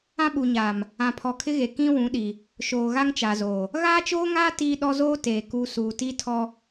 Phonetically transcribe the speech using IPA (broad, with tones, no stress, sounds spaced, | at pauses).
ã˦ ɓ u˨ ɲ aː˨ m | ã˨ pʰ ɔ˨ kʰ ɪ˦ ɣ e˨ k ĩ˦ w ũ˨˦ ɗ i˨ | ʃ oː˨ ɣ a˦ ŋ t͡ʃ a˨ z oː˨ | ɣ aː˦ t͡ʃ oː˦ ŋ aː˦ t iː˦ ɗ ɔ˦ z oː˦ t eː˨ k u˨ s uː˨ t i˦ tʰ ɔ˦